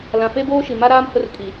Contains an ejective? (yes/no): yes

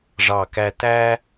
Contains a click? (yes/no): no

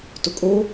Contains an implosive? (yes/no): no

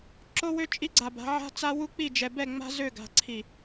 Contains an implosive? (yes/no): no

